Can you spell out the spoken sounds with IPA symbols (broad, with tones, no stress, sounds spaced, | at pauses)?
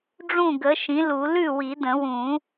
ɖ͡ʐ ũ˥˩ ɡ ə˩˥ ʃ ĩ˩˥ l u˨˩˦ l ʉ˥˩ w i˨˩˦ d ə̃˨˩˦ w ũ˨˩˦